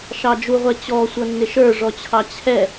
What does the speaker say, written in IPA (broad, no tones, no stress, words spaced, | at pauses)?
ʃɑd͡ʒuʁʷɛ t͡ɕɔsʷʌnːɪʃ ə˞ʐɔt͡ɕʰɑ t͡ɕʰɛ